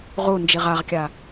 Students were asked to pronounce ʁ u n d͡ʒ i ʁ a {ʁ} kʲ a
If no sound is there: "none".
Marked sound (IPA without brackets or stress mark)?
ʁ